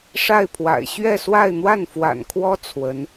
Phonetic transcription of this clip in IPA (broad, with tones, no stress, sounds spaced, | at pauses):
ʂ a˥˩ ɪ̯ pʰ w a̰˨˩ ɪ̯ ɕ ɥ ɛ˥˧ s w a˥˧ ɪ̯ n̪ w a˥˩ n f w a̰˨˩ n kʰ w ɔ˥ t͡sʰ w ə˧˥ n